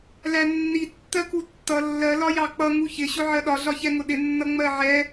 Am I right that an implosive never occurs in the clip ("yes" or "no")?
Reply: no